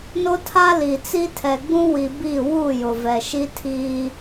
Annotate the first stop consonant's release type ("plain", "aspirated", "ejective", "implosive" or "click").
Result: aspirated